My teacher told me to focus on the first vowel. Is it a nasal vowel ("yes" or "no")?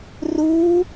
no